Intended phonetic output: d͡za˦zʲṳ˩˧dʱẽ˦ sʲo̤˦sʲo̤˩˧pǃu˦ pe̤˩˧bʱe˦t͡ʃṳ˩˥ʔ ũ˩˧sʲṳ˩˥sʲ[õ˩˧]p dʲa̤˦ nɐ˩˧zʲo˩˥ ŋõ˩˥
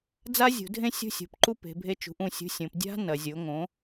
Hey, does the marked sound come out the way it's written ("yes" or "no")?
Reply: yes